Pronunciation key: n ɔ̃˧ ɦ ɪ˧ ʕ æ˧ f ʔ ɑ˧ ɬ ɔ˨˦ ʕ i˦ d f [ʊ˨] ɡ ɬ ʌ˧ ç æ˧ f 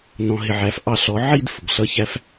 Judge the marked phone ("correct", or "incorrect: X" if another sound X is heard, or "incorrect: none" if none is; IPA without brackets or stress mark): correct